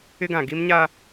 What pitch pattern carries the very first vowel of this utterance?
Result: high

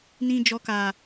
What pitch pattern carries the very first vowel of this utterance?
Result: high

